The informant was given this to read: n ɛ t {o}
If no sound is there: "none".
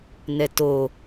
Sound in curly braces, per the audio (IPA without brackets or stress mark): o